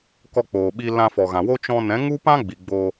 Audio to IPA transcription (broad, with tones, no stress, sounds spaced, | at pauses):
k ɔ˧ k͡p oː˨ ɓ i˧ l ã˧ f ɔ˨ ɣ ã˨ w o˦ t͡ʃ ɔ̃˧ n ɛ̃˨˦ ŋ u˦ p ã˦ ɡ͡b i˨ ɡ͡b o˧